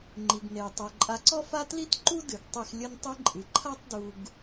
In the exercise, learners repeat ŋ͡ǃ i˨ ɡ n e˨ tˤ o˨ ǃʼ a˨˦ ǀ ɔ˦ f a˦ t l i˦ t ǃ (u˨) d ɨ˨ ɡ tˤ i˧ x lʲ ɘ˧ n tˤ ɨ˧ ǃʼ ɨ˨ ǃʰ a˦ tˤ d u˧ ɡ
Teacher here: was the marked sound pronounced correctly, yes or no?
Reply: no